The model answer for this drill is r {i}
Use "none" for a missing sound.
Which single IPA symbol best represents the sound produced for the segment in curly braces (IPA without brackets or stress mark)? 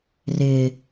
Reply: ɪ